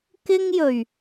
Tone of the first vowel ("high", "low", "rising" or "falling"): high